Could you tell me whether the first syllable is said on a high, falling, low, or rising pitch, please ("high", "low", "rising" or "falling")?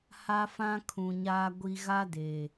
high